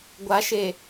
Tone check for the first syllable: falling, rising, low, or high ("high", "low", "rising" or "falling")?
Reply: rising